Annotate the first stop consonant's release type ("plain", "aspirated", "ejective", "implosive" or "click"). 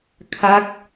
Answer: aspirated